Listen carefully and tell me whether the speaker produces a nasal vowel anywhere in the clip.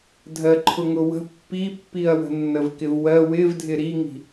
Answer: no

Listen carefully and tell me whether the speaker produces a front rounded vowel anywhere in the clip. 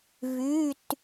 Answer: yes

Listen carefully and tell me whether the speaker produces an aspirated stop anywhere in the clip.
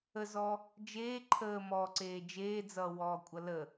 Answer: yes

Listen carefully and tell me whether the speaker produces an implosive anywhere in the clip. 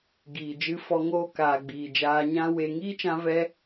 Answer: no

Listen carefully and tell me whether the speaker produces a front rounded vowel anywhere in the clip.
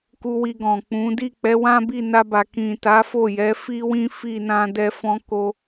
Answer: no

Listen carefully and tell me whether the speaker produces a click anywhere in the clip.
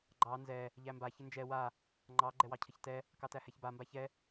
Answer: yes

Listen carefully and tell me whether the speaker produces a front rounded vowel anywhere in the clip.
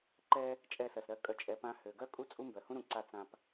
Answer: yes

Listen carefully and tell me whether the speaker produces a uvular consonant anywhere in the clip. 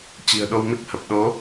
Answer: no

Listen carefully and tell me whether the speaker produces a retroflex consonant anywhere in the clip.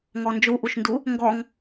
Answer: no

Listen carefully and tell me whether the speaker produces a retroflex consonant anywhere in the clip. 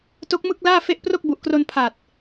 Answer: no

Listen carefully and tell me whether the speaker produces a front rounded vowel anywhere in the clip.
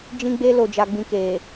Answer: no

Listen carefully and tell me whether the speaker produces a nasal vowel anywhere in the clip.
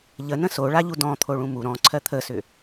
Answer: yes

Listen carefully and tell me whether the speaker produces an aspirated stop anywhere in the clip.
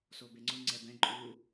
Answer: no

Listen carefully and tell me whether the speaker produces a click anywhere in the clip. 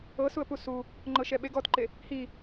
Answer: yes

